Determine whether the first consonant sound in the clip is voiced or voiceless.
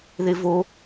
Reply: voiced